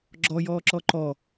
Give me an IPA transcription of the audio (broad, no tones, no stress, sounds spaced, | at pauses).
ɡ͡ǁ ɔ j ɔː ǁ ɔ ǃ ɔ